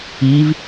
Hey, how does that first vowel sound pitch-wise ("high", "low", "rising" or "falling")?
rising